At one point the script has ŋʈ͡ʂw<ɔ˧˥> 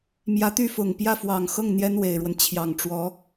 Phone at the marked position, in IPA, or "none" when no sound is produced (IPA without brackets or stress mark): ɔ˧˥